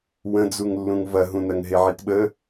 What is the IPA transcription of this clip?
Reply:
w ə̃ d͡z u ŋ lː ũ ŋ v ɐ ɦ ũ n ɐ ŋ ɦ e ʕ i t ɓ ə

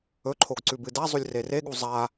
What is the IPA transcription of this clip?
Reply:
ɵ ǃʰ o ɡ ǀ ʉ b ɨ d a zˤ u lʲ r e r e ɠ u zˤ a

